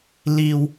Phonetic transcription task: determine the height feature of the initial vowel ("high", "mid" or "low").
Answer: high